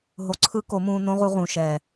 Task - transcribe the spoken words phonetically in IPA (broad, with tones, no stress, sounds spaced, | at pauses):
ɦ o˧ ǀʰ ɯ˦ k o˨˦ m ũː˧ n õ˦ ʁ u˧ ʁ ũ˨ ʃ ɛ˨